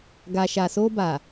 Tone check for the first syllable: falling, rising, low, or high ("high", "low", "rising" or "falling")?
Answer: low